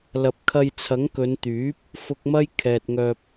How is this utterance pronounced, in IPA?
l ɐ˨ p̚ kʰ ɐ˧ j t͡sʰ ɐ˨˥ ŋ k ɵ˨˧ n t̪ yː˨˥ p̚ | f ʊ˧ k̚ m ɐ˥ j kʰ ɛː˨ t̚ ŋ œː˧ p̚

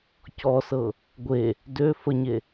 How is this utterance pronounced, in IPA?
c ɔ s ɤ | ɡʷ e | d ø f ə ɲ e

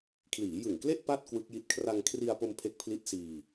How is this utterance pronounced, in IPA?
kʰ l iː˩˦ j ɯ˨˩ ŋ k l e˥˩ ʔ p a˥˩ t̚ k w ɯ˦˥ k̚ j i˦˥ t̚ kʰ r a˧ ŋ kʰ r i˧ a̯ p o˧ m pʰ e˦˥ k̚ pʰ l i˦˥ t̚ s iː˧

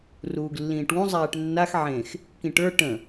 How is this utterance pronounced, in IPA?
r uː ɡ lː ĩː ʈ w ũ zˤ æː ʈ nː a x ʕ ẽ x | k ĩ ʈ ə˞ ʈ ə̃

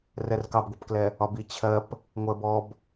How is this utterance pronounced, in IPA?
r ɛ r k ɑ b ɡʷ ɛ p k l ɛ | ɒ b i t͡ɕʰ ɜ p | ŋʷ ɜ b ɔ b

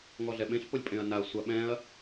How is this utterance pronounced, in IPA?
ŋ ɔ ɮ ɛ ɓ ẽ ɬ p o lʲ pʼ ẽ ɐ̯ n a ɐ̯ sʷ a ɓ ɛ̃ ɐ̯

